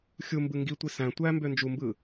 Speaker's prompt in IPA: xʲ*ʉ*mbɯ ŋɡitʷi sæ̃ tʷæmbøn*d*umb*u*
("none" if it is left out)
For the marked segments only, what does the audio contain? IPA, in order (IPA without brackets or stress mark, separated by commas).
u, d͡ʒ, ɯ